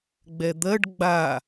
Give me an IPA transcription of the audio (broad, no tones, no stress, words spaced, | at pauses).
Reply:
ɡ͡bɛd̪ɜɖ ɡ͡ba